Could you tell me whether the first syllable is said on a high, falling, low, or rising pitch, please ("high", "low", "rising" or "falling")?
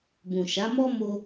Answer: low